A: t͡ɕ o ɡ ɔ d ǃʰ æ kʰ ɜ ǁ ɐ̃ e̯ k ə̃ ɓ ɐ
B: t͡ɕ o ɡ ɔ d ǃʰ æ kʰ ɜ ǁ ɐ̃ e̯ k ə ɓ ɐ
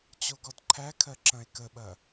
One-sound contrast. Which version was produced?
B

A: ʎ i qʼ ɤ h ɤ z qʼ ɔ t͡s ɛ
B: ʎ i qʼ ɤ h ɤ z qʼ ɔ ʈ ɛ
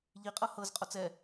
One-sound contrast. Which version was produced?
A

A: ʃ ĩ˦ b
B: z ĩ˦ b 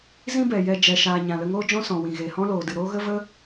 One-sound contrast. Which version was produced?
B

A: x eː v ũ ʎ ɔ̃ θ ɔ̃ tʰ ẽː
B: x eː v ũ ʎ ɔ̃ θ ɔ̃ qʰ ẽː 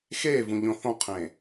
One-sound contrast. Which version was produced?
B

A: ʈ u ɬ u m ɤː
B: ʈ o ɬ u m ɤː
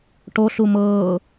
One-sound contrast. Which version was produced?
B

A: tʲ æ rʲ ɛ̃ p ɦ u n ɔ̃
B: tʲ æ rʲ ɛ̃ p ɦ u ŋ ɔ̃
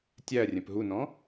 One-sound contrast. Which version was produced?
A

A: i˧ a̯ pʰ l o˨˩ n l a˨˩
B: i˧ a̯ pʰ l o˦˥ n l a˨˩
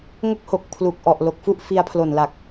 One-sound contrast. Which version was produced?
A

